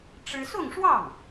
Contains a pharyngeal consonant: no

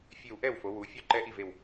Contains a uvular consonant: no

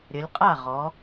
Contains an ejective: yes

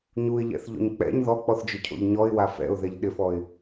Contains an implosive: yes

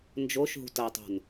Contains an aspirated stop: no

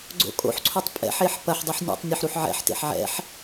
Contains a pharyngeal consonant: yes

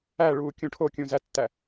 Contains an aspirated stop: yes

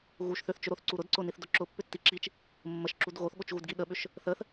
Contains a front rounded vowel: yes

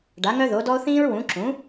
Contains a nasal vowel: yes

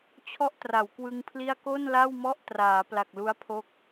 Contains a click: no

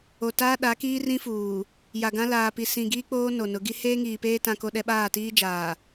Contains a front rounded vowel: no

